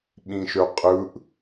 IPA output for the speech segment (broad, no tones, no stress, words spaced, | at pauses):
ɓĩʃøqʼɯʔ